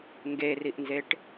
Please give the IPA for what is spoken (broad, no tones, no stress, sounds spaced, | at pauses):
ŋ ɡ e r i ʔ n z e ʈ